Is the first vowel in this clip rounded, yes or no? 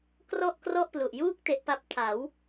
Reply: yes